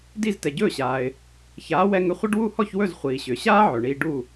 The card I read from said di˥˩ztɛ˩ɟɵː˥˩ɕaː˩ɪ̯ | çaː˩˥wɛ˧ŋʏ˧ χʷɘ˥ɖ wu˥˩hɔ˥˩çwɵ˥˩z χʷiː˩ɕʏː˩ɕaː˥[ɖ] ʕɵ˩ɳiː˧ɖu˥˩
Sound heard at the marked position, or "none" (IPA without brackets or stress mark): none